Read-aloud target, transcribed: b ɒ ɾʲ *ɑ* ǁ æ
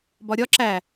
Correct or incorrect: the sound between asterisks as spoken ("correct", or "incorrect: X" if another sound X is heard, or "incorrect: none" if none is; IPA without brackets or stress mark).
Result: incorrect: ɒ